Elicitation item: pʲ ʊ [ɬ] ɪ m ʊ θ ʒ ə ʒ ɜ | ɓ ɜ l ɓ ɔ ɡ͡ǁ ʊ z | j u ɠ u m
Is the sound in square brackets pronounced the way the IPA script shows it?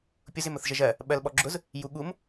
no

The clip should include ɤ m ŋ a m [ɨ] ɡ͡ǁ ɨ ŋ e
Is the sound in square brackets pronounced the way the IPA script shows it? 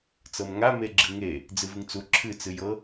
no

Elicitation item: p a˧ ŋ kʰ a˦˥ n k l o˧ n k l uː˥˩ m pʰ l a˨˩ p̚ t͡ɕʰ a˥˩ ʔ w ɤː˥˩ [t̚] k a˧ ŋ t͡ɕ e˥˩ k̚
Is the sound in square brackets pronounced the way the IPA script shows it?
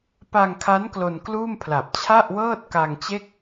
yes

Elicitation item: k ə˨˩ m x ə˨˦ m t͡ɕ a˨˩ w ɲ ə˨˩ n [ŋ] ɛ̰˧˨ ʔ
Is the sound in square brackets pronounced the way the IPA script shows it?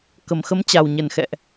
no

